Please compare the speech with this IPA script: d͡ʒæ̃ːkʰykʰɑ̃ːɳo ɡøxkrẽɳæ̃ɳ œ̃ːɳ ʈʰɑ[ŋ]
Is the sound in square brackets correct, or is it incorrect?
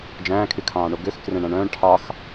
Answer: incorrect